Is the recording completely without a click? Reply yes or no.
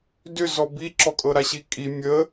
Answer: no